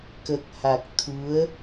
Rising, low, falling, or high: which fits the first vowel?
low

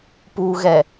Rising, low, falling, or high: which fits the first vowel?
low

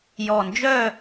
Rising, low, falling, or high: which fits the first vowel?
low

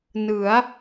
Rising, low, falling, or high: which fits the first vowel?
rising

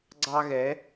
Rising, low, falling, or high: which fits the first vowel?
high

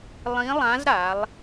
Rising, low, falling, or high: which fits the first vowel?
rising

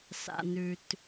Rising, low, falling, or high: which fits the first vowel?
low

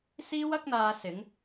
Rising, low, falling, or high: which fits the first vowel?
high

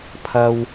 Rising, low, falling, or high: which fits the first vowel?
low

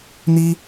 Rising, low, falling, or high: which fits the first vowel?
high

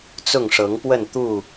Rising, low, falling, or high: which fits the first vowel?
falling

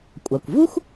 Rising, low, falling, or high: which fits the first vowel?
low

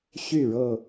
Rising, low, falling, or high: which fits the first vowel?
falling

